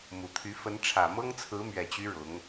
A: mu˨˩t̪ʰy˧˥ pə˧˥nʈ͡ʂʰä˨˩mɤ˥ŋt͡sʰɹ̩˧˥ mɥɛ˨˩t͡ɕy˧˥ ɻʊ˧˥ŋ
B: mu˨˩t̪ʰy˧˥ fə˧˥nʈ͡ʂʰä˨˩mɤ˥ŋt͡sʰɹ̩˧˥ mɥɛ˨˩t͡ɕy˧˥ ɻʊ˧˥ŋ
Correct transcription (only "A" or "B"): B